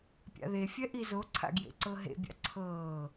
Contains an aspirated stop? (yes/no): yes